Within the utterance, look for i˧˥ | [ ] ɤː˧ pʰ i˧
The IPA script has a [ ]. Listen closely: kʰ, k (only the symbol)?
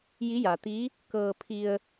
k